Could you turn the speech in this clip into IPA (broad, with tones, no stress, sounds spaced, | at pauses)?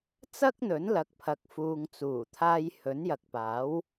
t͡s ɐ˥ k̚ n̪ ɵ˨˥ n l ɐ˨˥ k̚ pʰ ɐ˨ k̚ f uː˨ ŋ t͡s uː˨˩ t̪ʰ aː˧ j h ɵ˨˥ n j ɐ˨ k̚ p aː˨˥ w